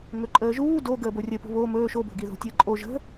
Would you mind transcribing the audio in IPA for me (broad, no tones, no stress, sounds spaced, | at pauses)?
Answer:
ŋ ɵ ǃʼ əː ʒ uː d o ɡ əː b o rʲ ə p o̤ β o m ɵː ʃ o b o̤ ɡ i ð o̤ tʲ əː ǃʼ o ʒ ə̤